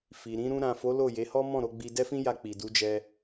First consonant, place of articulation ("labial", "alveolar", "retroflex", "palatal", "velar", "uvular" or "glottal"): labial